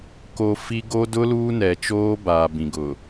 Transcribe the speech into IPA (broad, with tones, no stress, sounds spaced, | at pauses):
k o˨ f i˦ ɡ o˦ d ʊ˦ l uː˦ n ɛ˨ t͡ʃ oː˦ b aː˨ b ĩ˨ ɡ ʊ˨